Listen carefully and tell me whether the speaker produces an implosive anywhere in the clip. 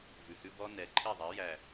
no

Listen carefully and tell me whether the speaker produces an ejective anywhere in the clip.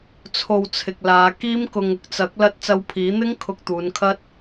no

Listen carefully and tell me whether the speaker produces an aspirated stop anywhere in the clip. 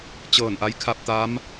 yes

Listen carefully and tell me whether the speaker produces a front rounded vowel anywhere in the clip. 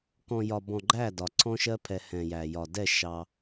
no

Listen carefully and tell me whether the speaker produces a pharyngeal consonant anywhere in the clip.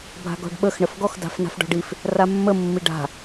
no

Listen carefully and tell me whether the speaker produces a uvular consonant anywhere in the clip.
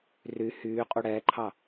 yes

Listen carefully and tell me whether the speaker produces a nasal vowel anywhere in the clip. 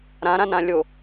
yes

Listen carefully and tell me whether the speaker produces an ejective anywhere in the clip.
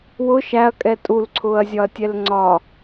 yes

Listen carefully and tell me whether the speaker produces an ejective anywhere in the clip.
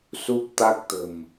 no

